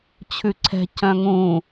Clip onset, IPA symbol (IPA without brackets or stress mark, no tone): t͡ɕʰ